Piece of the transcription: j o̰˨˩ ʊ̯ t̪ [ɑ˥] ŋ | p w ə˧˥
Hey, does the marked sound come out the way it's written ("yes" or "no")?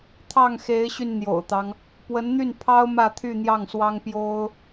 no